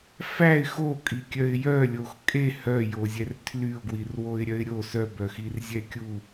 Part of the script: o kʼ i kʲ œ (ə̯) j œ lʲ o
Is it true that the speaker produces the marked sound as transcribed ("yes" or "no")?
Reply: no